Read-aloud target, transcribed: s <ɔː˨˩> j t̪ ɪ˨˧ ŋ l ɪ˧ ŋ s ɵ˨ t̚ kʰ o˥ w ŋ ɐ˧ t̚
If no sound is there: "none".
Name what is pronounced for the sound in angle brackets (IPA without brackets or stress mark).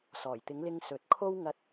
ɔː˨˩